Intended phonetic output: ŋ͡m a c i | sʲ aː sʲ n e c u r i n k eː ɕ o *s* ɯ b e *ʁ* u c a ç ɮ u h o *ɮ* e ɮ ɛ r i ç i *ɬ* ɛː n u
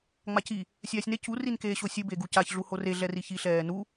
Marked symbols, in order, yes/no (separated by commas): no, no, no, yes